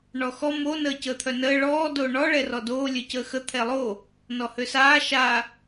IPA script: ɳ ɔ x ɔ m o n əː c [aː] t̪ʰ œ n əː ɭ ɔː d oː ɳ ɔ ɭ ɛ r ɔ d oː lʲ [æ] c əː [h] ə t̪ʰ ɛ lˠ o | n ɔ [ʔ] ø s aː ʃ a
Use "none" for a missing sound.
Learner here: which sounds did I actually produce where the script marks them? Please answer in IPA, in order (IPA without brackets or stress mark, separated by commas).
əː, œ, x, h